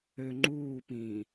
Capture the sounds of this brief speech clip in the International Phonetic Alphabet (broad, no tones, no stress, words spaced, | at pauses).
ø ŋ͡ǃuːpĩː